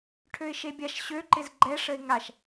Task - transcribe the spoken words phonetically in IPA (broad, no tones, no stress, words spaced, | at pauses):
ʈʰøɪ̯ʃebʲaʃ ɕøǃɪz ɡ͡ǃɛʂəɪ̯ ŋaʃ